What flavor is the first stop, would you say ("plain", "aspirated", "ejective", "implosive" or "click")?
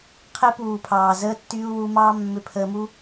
aspirated